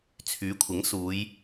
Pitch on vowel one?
rising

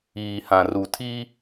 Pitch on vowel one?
low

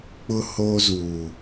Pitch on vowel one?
high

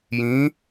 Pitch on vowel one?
rising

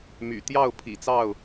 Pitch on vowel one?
low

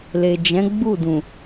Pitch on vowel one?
low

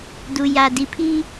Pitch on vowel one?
low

